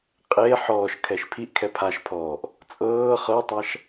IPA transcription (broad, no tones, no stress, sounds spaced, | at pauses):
qʼ e ħ ɔː ʃ kʰ ɛ ʃ pʰ i ʔ kʰ ɛ pʰ a ʃ pʰ ɔː ʔ | t͡sʼ ɤː χ ɤ tˤ a ʃ